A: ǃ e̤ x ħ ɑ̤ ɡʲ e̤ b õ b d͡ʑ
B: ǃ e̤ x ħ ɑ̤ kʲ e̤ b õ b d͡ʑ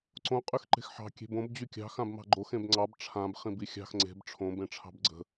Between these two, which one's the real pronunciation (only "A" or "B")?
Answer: B